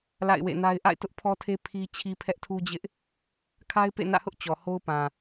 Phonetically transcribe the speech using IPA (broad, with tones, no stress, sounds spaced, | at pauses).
l a̰˦˨ ɪ̯ w ḛ˦˨ n a˦ ɪ̯ ʔ a̰˦˨ ɪ̯ t ʊ˦ ʔ pʰ ɔ˦ tʰ e˦ pʰ i˦ t͡ɕʰ i˦ pʰ ɛ˦ ʔ tʰ u˦ d͡ʑ ɪ˦ ʔ | kʰ a˦ ɪ̯ p ḛ˦˨ n ä̰˦˨ h ʊ˦ ʔ t͡ɕ ɔ˨ h o˦ ʊ̯ p ã˨